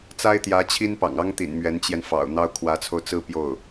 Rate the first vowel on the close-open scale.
open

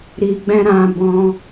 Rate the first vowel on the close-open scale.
close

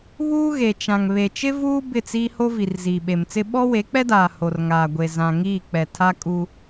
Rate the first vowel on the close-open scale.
close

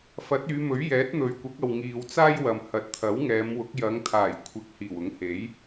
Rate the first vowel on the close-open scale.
open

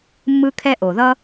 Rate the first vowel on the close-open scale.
close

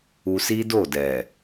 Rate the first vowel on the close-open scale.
close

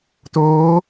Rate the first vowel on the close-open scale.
mid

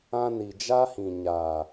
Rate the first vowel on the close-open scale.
open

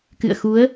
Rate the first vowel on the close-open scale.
close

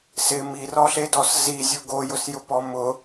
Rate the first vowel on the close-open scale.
close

